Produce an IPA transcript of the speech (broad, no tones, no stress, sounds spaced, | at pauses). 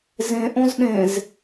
z ẽ ʔ õ z ɗ ẽ z